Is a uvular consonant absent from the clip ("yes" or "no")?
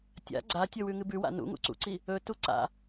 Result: yes